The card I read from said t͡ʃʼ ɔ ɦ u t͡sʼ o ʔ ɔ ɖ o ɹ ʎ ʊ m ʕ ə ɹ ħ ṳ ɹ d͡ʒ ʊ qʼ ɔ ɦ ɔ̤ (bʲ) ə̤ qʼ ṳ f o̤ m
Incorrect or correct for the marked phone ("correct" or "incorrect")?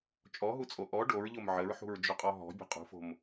correct